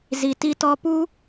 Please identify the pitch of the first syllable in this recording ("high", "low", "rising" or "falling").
low